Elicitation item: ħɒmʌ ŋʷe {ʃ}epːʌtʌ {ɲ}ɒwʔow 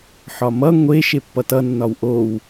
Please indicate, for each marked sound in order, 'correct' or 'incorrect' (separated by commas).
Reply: correct, incorrect